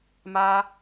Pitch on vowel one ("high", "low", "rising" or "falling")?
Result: high